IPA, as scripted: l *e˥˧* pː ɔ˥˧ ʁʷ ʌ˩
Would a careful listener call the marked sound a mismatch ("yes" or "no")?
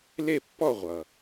no